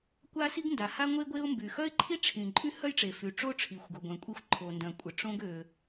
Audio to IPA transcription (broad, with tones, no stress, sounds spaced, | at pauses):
kʷ a˥ s i˥ ɡ n d a˩ h a˥ ŋʷ e˥ ɡʷ e˥ ʊ̯ m b y˩ x œ˥ ɪ̯ ǃʰ i˥ ʈ͡ʂʰ ĩ˩ ǃʼ y˥ h œ˥ j ʈ͡ʂ e˩ f y˩ ʈ͡ʂ o˥ ʈ͡ʂʰ i˩ xʷ ɡ o˩ ɡʷ œ̃˩ kʷʼ e˥ xʷ ǃʰ o˩ n d œ̃˩ kʷʼ ə˩ ʈ͡ʂ õ˥ ɡ ø˩